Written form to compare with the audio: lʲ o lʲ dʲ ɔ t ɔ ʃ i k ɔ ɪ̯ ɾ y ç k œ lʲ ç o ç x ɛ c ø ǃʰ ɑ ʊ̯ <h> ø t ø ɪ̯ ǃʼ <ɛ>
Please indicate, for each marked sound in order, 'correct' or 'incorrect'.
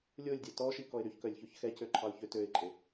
incorrect: ç, incorrect: e

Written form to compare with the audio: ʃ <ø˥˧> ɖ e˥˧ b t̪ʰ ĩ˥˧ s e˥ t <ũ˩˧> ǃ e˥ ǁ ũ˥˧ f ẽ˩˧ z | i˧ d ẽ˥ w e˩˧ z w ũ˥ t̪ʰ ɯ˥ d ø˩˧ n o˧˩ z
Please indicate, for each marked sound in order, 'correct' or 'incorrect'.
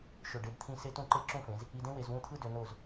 incorrect: ø˧˩, incorrect: ũ˥˧

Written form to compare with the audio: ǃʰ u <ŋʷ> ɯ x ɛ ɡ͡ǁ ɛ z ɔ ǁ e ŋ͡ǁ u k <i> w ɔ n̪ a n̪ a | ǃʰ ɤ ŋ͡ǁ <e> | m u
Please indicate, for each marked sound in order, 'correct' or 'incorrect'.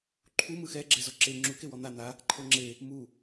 incorrect: m, incorrect: e, correct

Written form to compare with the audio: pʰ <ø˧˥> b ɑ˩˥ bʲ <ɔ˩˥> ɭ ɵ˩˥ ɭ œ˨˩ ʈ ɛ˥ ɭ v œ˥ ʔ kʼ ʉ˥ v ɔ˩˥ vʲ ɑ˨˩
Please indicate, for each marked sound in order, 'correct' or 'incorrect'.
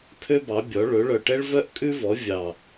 incorrect: ø˥, correct

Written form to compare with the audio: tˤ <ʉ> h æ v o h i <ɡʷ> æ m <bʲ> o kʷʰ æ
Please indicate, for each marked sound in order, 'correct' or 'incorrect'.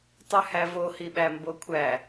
correct, incorrect: ɓ, incorrect: b

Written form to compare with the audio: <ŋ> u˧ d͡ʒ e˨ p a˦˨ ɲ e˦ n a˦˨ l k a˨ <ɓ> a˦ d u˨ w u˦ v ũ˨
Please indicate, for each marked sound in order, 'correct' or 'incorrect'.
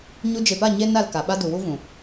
incorrect: ɲ, correct

